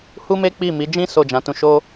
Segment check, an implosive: absent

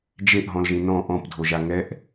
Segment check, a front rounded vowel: absent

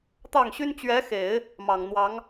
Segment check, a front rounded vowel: present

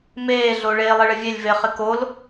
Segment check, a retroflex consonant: present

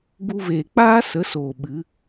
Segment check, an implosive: present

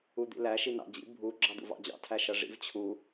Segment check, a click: present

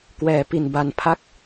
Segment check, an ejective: absent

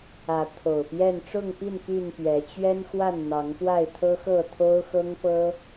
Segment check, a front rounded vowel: present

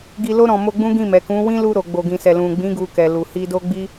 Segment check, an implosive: absent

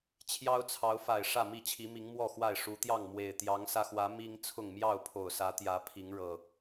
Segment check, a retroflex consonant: present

